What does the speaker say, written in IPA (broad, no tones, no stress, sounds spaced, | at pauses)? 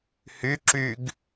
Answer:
h y ǁ y ɡ